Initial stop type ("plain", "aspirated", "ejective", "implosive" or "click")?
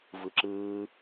click